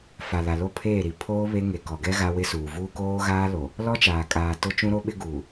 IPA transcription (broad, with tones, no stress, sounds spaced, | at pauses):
f a˨ l a˨ l o˦ pʰ eː˦˨ ɾ i˨ pʰ oː˦ β e˦ ŋ e˨ k ɔ˨ ɡ ɛ˦ ɣ a˦ w ɪ˦ s uː˨ v uː˦ k oː˦ ɣ aː˦ l o˨ | l ɔ˦ t͡ʃ aː˨ kʼ aː˨ t ʊ˦ t͡ʃ ũ˦ ɾ o˦ ɓ ɪ˦ ɡ uː˨